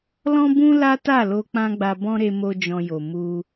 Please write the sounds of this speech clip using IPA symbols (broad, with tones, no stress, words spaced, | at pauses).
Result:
lɔ̃˦bũ˦ la˦ta˦˨lo˧ k͡pã˦ɡ͡ba˧bɔ̃˦ ɾe˧mo˧ d͡ʒɔ̃˧jo˨ mu˧